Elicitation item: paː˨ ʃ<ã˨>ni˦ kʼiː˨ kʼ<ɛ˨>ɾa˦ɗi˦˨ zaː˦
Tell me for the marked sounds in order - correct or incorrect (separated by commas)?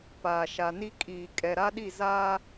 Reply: incorrect, correct